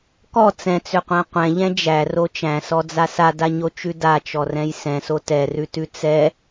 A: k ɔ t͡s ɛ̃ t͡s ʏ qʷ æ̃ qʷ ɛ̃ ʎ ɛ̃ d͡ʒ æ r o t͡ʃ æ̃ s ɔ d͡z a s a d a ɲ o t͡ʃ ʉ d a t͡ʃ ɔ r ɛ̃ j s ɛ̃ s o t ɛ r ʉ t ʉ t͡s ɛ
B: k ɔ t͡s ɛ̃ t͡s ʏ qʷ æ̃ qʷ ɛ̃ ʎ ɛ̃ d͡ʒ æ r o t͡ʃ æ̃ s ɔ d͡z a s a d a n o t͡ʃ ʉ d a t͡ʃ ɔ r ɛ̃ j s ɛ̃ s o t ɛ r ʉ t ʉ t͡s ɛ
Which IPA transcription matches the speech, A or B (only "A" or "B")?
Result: A